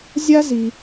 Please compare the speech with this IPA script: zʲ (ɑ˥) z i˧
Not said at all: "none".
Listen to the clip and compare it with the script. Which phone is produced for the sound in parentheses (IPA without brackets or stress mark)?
a˥